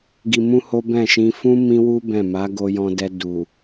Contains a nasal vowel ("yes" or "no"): yes